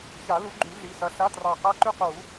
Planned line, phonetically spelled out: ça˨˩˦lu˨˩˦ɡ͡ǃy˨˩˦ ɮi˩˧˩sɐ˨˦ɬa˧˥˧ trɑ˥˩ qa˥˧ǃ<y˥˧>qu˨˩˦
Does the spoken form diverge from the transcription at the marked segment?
no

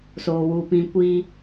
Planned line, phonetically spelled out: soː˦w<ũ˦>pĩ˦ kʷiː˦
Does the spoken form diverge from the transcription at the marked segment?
yes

